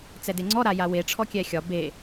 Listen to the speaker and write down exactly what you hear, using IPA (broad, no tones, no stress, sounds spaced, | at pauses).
t͡s ɛ d e ŋ͡ǀ ɔ ɾ a j a w e ʈ͡ʂʰ ɔ kʲ ɛ xʲ ɒ b e